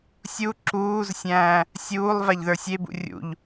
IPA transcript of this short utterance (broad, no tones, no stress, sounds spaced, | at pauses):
sʲ u ǁ uː z sʲ æ̃ː | sʲ uː lˠ v a ʎ ð ə˞ sʲ e b ṵ rʲ ṵ ʎ